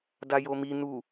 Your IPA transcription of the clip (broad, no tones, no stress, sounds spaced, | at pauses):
d a j o m i n u